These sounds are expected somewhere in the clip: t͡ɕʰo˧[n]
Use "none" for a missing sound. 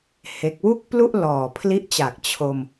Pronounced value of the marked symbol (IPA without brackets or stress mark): m